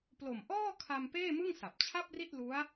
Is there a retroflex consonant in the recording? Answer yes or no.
no